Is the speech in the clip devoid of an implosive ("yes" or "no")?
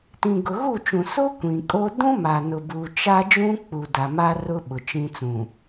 no